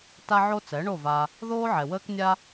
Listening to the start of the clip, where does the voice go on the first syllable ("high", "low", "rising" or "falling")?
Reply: high